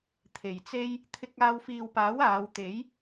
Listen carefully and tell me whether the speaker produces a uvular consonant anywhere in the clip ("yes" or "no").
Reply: no